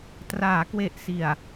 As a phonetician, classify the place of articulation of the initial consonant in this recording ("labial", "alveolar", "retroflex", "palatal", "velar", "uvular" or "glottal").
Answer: alveolar